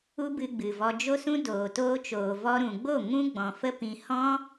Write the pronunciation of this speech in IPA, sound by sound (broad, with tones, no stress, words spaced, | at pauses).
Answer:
u˦bɨ˧ɡ͡bɨ˨vɔ˧ d͡ʒo˦sũ˦ doː˨toː˧t͡ʃoː˨ vɔ˧ɾũ˨ɡ͡bo˦˨ ŋũ˦ ɡ͡bɔ̃˨fə˦ pĩ˧ hɔ̃˦